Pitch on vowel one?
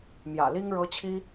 low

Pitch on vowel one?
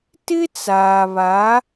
high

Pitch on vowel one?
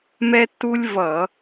high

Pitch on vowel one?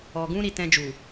low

